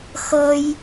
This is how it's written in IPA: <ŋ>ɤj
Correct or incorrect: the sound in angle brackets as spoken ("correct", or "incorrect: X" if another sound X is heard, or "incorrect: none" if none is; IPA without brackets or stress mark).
incorrect: x